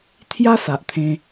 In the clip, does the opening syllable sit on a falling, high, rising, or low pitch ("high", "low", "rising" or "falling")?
high